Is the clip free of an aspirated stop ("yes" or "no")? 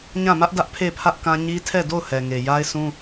no